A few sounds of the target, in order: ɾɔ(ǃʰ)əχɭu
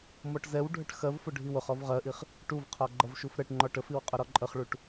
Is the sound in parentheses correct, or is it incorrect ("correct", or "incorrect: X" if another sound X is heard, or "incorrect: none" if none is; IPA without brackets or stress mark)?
incorrect: ǃʼ